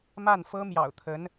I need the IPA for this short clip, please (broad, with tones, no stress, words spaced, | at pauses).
ma˥˩nfɤ˥ mjɑ̰˨˩ʊ̯t̪ʰə˧˥n